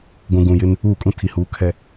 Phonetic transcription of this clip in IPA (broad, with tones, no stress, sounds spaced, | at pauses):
ɡʷ ũ˨ ɡ ũ˨ j ɪ˦ n | uː˦˨ kʼ ũ˦ tʰ i˨ h uː˨˦ kʰ ɛ˨